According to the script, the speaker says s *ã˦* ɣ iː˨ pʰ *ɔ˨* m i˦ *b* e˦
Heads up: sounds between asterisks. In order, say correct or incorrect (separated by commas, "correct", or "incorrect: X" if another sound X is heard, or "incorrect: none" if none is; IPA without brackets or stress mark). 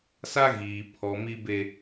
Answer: incorrect: a˦, correct, correct